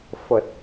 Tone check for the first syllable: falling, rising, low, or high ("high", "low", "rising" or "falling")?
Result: low